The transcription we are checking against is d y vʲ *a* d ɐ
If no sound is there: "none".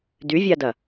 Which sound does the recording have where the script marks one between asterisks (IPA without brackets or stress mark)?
a